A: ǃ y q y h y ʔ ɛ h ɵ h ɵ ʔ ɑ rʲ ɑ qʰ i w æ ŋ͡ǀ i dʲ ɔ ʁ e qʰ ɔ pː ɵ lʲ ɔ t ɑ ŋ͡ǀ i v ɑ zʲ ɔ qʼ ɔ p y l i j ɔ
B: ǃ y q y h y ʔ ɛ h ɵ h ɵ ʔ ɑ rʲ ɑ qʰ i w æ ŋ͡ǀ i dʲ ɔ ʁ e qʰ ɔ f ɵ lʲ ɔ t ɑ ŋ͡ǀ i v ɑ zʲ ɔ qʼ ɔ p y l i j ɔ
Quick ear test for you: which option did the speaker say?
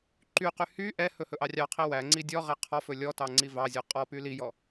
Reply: B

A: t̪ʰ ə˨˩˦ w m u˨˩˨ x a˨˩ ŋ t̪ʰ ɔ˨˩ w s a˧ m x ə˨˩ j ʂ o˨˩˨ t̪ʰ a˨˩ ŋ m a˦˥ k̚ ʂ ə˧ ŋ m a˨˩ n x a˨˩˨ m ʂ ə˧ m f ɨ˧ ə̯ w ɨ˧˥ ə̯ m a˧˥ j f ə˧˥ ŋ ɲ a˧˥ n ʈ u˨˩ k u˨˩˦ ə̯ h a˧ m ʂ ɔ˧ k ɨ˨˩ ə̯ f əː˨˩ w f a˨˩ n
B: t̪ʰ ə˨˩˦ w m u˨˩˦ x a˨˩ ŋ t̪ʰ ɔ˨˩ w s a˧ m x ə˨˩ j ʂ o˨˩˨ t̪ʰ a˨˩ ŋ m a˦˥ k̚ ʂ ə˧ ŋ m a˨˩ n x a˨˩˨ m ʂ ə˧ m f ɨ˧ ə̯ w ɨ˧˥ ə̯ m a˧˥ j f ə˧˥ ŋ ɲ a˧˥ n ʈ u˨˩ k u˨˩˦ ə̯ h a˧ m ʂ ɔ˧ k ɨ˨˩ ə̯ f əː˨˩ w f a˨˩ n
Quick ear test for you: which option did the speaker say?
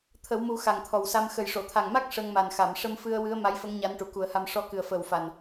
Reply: B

